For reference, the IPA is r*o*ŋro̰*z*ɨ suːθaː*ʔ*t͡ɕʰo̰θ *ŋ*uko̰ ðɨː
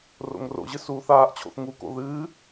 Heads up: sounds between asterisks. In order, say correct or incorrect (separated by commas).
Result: incorrect, incorrect, correct, correct